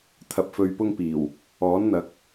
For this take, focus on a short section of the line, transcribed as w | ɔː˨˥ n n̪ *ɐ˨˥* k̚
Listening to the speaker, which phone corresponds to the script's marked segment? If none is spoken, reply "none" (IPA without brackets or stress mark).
ɐ˨˥